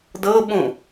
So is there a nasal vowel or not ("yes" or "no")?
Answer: yes